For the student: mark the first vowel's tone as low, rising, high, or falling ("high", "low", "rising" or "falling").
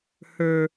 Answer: low